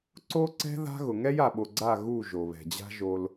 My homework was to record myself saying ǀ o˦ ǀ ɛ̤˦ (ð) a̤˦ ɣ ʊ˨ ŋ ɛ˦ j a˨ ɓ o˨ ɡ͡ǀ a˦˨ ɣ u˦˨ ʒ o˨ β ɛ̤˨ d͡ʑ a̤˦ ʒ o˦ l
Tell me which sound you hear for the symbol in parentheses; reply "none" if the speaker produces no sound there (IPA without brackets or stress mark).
ð